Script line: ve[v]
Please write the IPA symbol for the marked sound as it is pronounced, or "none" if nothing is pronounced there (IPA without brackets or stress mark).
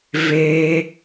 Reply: none